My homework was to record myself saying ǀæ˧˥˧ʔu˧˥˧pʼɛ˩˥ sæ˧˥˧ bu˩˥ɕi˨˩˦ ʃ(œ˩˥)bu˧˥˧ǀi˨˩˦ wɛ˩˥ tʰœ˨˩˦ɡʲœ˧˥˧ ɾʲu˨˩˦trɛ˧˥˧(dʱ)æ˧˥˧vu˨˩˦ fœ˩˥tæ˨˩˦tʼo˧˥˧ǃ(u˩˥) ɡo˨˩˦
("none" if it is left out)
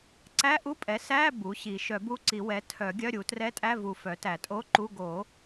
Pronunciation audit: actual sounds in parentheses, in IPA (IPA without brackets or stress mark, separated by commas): œ˨˩˦, tʼ, u˧˥˧